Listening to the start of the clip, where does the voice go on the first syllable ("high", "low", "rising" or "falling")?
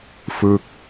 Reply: falling